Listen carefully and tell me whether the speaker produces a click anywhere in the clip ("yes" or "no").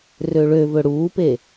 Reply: no